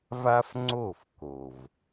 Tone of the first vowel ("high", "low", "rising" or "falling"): high